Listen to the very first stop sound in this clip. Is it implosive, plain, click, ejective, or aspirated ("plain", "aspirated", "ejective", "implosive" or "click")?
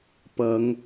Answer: plain